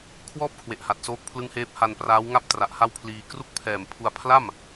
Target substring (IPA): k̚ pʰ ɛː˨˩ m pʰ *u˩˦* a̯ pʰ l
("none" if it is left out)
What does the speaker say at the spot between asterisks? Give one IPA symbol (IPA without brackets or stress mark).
u˧